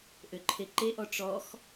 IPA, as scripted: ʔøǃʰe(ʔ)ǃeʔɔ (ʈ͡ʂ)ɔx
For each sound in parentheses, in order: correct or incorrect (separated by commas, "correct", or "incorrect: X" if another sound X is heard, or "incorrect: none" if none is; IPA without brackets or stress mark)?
incorrect: none, correct